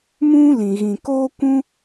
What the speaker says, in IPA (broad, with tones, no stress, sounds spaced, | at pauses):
m ũ˦ l ĩ˨ ɣ ĩ˨ k oː˦ kʷ ũ˦